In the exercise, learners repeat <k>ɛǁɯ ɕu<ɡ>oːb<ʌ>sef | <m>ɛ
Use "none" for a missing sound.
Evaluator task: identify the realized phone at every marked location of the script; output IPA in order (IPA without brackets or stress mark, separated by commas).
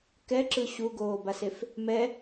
k, ɡ, a, m